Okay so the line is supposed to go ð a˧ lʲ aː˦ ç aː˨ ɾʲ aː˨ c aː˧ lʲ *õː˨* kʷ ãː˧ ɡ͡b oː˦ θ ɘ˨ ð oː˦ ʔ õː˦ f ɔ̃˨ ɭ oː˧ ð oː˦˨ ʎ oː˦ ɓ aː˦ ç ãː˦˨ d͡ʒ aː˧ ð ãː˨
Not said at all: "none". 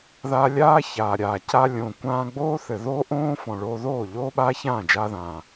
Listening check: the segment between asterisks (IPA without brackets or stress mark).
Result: õː˨